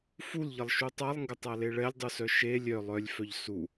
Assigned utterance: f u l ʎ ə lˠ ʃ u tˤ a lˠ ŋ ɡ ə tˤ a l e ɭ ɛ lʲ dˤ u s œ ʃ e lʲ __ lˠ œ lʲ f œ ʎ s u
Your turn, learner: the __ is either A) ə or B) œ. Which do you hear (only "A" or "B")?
B